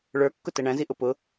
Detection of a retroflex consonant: present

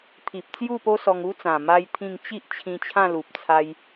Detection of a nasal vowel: present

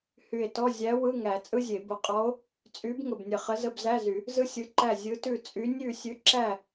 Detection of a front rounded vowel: present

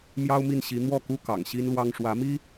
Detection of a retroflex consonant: present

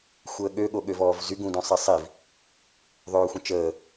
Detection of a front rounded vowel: present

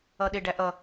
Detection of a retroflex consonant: present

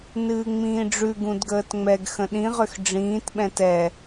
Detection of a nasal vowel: present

